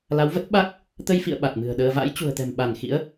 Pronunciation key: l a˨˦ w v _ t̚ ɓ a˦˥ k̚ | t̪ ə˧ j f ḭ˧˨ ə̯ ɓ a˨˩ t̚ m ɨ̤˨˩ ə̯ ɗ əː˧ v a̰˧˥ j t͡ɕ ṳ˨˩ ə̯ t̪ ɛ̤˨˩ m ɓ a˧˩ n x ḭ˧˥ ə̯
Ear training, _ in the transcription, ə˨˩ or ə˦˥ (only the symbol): ə˦˥